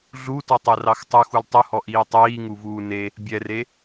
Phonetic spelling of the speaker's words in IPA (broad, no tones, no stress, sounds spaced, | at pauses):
ɮ u t ɔ tˤ ɛ r ɑ x tˤ u x u l tˤ u h ɔ ʔ iː tˤ iː ŋ u v uː n e | bʲ ɛ r e